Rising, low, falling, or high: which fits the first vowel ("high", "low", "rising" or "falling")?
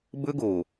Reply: high